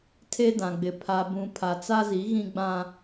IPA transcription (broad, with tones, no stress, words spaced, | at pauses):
tʰe˦dã˨ɡ͡bɪ˨ pʰa˨bũ˨ pʰa˨t͡sa˦zi˨˦ ɣĩ˦ɡ͡bã˦